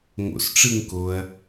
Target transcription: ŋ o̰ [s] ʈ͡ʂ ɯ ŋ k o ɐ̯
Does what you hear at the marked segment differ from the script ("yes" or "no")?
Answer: no